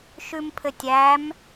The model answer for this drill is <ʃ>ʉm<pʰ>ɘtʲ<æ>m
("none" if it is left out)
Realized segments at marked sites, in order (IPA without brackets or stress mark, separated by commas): ʃ, pʰ, æ